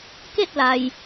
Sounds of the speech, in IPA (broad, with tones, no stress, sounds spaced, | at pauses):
k e˥˨ t̚ l a˩ j